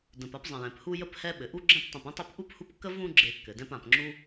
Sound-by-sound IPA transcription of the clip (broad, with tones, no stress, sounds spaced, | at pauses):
d ə̃˨ p a˥ p zˤ ə̃˨ j ɛ̃˩ p h u˦ j ə˥ p h ɛ˦ ɓ ɘ˩ ʔ u˦ ɡ͡ǁ ɛ̃˦ p tˤ ə̃˨ p ə̃˥ tˤ ɘ˦ p ʔ u˥ p h u˦ p kː ə˥ v ũ˦ ɡ͡ǁ e˨ kː ɘ˩ d ɛ̃˦ p ã˨ p ŋ͡ǁ u˥